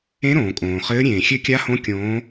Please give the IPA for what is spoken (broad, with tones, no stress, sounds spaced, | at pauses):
ẽ˧˥ ɾ õː˩ kʼ õː˩ χ ɘː˧˥ ɾʲ ẽː˩ xʲ ɘ˧˥ kʲ a˧˥ h õ˧˥ kʲ õː˧˥